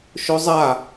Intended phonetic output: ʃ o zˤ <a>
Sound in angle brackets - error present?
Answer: no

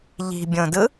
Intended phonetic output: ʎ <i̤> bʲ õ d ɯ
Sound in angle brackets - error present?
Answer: no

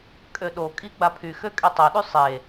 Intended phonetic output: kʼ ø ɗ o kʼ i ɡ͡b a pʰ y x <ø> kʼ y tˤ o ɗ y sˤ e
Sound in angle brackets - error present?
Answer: no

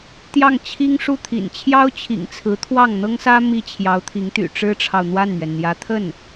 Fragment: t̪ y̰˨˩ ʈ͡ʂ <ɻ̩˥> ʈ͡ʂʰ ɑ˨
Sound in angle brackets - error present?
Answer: no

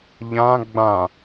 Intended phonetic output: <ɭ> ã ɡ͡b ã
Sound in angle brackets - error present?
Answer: yes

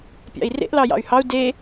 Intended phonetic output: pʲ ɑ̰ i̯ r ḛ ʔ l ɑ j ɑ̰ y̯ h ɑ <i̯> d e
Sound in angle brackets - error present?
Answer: yes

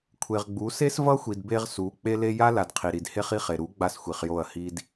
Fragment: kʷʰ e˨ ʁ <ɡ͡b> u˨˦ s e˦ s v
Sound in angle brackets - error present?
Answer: no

